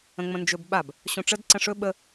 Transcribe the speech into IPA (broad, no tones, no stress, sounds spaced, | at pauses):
ə̃ ŋ͡m ə̃ n d͡ʒ ɵ b ɓ a b | ɕ õ ʈ͡ʂ ə d ǀ ə̃ ʂ ɵ ɓ ə